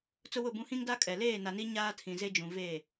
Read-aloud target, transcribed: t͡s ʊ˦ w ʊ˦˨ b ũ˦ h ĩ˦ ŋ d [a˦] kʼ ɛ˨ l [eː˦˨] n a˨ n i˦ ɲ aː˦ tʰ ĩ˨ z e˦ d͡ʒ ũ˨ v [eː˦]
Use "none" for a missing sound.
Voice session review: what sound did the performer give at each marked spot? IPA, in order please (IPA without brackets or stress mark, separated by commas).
a˦, eː˦˨, eː˦˨